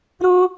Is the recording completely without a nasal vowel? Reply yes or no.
no